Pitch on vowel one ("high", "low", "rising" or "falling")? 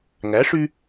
rising